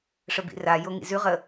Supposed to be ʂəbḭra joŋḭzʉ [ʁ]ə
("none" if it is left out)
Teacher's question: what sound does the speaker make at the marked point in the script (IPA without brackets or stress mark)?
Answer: ʁ